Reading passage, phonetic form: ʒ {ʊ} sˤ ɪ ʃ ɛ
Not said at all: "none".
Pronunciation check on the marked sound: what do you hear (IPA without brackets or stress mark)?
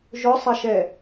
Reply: ʊ